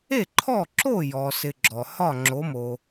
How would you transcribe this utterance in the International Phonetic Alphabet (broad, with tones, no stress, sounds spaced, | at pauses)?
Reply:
e˥˩ ǃʰ ɔ˥˩ ǁ o˥˩ j ɔ˩ s ɪ˧ ɡ͡ǁ ɔ˩ h ɒ˥˩ ŋ͡ǁ o˩˥ m o˩